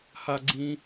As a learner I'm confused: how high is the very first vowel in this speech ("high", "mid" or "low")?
low